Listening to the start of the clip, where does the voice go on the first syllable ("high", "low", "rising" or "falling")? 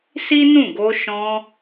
high